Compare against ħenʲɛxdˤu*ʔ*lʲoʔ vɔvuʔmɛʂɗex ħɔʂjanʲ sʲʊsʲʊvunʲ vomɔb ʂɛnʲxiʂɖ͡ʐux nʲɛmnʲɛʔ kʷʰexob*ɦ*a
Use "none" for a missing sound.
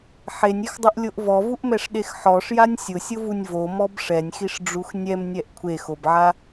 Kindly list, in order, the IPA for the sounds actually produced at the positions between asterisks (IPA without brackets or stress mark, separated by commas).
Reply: ʔ, ʕ